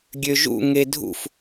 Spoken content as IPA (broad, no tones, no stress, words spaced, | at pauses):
ɡʲøʒṵ ŋedʱṵf